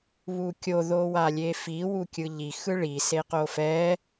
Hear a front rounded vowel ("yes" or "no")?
no